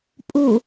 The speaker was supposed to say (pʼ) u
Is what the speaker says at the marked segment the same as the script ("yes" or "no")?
yes